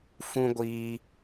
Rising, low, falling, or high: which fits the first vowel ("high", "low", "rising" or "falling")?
high